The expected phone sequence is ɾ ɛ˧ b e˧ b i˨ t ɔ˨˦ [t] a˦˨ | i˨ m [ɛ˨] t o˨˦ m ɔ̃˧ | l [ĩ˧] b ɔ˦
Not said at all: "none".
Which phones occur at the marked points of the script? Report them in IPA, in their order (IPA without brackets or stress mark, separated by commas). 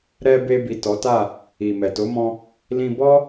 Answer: t, ɛ˨, ĩ˧